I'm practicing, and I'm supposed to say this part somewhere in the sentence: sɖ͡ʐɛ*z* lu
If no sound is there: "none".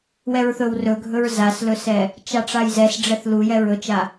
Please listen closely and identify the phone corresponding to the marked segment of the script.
θ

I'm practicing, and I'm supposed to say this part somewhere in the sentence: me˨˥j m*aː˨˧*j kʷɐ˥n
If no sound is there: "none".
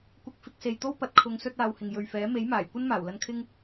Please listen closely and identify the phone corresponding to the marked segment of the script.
aː˨˩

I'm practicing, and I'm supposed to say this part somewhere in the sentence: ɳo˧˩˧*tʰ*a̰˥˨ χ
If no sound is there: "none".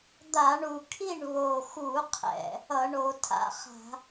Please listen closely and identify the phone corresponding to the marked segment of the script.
tʰ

